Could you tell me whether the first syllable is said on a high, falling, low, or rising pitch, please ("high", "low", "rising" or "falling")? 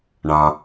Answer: low